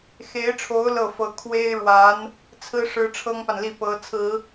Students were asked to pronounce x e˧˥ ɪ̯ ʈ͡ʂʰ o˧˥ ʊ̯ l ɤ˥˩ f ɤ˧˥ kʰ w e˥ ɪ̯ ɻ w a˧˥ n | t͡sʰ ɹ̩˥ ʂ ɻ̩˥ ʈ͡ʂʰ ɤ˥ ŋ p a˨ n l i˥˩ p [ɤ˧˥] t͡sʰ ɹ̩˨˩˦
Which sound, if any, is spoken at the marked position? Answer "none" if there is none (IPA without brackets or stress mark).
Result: ɤ˧˥